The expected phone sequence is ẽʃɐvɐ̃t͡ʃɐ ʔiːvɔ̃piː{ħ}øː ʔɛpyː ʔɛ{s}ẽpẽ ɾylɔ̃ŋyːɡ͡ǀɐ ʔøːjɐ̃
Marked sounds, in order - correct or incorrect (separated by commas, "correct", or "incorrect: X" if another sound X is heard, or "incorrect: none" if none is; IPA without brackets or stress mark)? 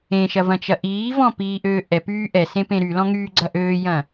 incorrect: ʔ, correct